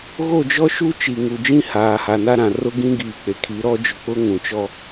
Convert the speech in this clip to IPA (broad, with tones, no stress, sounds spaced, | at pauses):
ɣ o˦˨ d͡ʒ ɔ˦ ʃ u˦ t͡ʃ i˨ ŋ u˨ d͡ʒ ĩ˦ h aː˨ h a˨ n a˦ ɾ ã˨ r ʊ˦ ɡ ĩ˦ ɡ iː˨ k͡p e˨ kʰ i˨˦ ɾ ɔ˦ d͡ʒ ʊ˨ k͡p ʊ˦ ŋ ũ˨ t͡ʃ ɔ˦